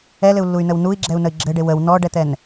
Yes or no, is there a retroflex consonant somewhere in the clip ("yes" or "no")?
yes